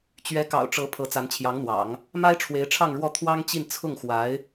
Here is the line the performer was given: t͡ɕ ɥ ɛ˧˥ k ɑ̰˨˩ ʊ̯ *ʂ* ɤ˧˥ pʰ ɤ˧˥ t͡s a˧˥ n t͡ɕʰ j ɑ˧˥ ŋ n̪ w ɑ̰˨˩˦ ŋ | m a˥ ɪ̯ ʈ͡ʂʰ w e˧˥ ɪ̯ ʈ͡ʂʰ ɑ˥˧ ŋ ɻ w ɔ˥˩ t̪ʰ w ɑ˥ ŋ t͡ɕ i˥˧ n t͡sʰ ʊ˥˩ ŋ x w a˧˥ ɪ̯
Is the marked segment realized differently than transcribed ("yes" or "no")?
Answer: yes